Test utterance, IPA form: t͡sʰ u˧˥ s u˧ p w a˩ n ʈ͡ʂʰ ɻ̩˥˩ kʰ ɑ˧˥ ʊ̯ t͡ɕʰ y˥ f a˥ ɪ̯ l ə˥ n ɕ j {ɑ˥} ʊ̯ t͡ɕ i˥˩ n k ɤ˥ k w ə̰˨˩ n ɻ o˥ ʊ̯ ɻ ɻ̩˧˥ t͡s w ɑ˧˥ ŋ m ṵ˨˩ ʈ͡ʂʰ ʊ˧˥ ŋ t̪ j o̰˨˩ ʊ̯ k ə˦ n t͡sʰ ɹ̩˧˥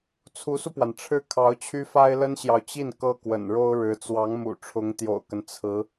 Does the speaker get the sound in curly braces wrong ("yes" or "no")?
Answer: yes